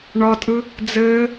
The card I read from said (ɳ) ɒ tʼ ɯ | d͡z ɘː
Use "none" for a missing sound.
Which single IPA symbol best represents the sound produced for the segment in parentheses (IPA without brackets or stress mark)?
ɳ